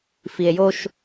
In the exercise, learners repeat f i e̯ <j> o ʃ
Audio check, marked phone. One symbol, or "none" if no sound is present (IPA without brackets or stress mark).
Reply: j